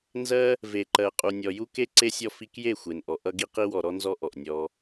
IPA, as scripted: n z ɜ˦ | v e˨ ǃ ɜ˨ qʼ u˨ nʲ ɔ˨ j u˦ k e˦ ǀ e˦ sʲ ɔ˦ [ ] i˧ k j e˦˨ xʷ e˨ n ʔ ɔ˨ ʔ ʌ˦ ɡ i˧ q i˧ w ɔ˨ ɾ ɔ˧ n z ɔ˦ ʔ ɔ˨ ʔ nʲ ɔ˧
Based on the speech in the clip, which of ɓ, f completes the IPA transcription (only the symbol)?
f